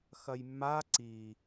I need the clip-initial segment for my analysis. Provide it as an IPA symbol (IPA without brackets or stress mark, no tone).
x